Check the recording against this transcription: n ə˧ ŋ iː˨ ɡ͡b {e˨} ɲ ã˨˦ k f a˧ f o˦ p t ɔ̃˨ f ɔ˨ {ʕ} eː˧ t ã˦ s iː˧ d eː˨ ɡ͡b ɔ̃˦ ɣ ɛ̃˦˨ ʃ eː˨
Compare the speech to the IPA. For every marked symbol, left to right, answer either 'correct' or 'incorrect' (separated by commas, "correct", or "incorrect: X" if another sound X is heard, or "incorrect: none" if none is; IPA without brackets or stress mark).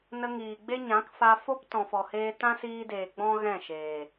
incorrect: e˦, incorrect: h